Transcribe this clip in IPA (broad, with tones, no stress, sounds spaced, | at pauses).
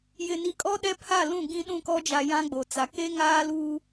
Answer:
j ɪ˨ n i˨ kʼ ɔ˦ ɗ ɛ˦ pʰ a˦˨ l ũ˦˨ ɡ ĩ˦ ɗ ũ˦˨ k ɔ˦ d͡ʒ a˨ j ã˦ ɡ͡b o˨ t͡s a˨ k e˦ ŋ aː˦ l uː˦